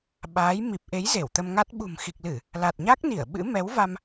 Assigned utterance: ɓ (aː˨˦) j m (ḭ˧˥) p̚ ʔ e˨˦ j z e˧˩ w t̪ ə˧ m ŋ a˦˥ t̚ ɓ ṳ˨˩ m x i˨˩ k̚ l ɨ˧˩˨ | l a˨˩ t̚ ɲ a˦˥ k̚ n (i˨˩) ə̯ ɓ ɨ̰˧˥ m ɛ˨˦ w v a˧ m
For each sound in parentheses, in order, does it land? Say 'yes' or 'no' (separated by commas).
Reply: yes, no, no